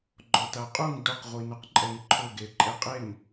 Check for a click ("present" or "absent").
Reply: present